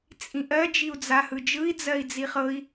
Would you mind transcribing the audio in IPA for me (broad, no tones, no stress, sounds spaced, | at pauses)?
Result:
t͡sʼ ĩ ʔ ɜ d͡ʒ i u̯ d͡z a h ɯ d͡ʒ ɯ i̯ d͡z ɜ i̯ d͡z i χ ɤ i̯